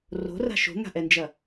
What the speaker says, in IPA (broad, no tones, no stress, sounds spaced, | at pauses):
r o̤ r a̤ ʃ o̤ ŋ a̤ ʔ ɛ n d͡ʒ ɐ